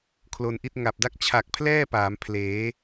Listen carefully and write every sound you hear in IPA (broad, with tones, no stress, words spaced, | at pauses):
kʰlo˧nʔi˦˥t̚ ŋa˨˩p̚da˥˩k̚ t͡ɕʰa˨˩k̚pʰlɛː˥˩ paː˩˦mpʰleː˩˦